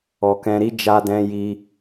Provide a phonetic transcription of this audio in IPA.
ɔ˨ k ɛ̃˧ ɾ i˦ d͡ʒ a˦ d ɛ̃˦ j i˧

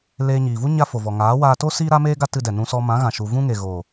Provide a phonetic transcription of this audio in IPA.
l eː˧ ɲ iː˨ v u˦ ɲ a˦ f o˨ v ɔ˨ ŋ aː˨˦ w aː˧ t o˦ s iː˦ ɾ a˦ m eː˦ ɡ a˦ t ɨ˧ d ɛ˨ n ũ˧ s ɔ˧ m ã˨˦ ɣ ã˨ ʃ u˨ v ũ˦ ŋ e˨ ɣ o˨

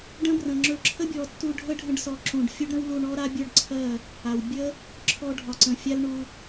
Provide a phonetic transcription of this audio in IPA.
ɖ ə̃˦ b r ə̃˨ ŋ͡ǁ ɵ˧ ǁʰ ə˦ bʲ ɔ˨ tː u˧ ɖʱ ə˦ ɖʱ ə̃˧ ɖ s ɔ˨˦ ǁ ũ˨ ɖ fʲ u˦ ɖ ɾ ə̃˦ w l u˧ ɳ ɔ˦ ɾ a˦ bʲ ə˞˦ ɖ ǀʰ ɜ˦˨ | a˨ w bʲ ə˦ | ǁʰ ɔ˧ ɖʱ ɒ˨ ǀ ə̃˨ fʲ a˦ l ɳ u˧

